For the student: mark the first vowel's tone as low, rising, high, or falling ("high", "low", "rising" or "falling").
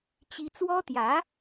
high